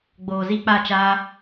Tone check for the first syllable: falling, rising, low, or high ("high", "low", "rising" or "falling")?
low